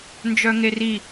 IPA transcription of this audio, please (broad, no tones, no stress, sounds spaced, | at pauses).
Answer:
n d͡ʒ œ ŋ e r i